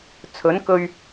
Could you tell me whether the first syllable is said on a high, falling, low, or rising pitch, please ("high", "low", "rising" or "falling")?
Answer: rising